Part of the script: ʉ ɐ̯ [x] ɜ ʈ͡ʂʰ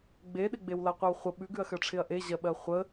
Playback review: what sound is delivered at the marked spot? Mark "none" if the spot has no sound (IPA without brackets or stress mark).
x